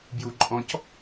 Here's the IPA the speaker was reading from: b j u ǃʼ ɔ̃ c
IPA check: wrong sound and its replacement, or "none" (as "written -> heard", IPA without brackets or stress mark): none